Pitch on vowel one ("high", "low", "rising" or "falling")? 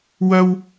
high